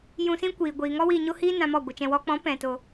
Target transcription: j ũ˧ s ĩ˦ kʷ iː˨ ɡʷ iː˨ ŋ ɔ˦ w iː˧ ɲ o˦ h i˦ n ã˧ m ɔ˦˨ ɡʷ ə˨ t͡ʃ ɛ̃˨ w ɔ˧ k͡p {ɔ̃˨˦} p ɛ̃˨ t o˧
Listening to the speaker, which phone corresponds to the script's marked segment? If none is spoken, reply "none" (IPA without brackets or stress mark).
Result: ɔ̃˨˦